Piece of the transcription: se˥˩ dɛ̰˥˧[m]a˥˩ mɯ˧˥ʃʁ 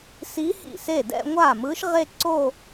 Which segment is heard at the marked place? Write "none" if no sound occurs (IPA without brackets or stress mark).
ŋʷ